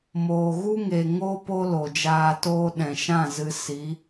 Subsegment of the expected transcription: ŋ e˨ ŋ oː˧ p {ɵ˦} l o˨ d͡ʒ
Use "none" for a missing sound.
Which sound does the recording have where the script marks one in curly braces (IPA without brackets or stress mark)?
o˦